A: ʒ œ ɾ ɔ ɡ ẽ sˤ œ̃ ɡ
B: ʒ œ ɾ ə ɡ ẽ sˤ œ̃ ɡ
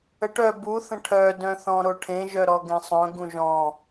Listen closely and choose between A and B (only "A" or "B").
A